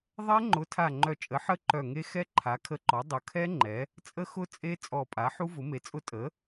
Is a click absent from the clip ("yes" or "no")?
no